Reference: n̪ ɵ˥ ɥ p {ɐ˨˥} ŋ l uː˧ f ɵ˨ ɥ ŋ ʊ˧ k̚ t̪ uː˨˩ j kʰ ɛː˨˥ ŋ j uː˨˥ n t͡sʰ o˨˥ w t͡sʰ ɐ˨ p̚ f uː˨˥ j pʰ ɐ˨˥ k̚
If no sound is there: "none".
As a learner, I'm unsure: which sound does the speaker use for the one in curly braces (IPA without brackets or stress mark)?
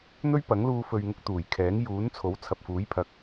ɐ˨˥